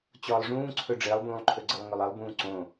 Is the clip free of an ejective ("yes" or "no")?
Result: yes